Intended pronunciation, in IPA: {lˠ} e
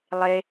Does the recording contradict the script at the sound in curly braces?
no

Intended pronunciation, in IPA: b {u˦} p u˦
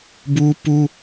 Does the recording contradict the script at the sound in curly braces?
no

